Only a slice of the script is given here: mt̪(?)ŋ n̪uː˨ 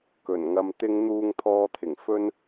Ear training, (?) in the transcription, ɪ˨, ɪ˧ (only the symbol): ɪ˧